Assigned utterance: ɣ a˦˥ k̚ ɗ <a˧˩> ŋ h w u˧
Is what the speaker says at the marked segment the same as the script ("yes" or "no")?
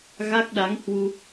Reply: no